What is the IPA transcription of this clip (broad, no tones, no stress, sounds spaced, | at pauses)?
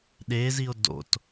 ɗ e z i o̯ d o̰ t